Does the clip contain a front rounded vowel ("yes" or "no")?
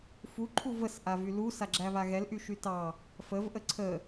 yes